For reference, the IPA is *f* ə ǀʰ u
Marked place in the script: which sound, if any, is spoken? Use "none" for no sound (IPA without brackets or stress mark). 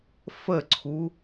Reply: f